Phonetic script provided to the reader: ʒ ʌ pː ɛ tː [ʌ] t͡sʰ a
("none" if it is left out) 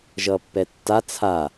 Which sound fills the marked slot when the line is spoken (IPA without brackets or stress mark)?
a